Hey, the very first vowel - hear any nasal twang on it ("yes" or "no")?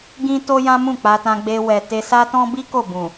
yes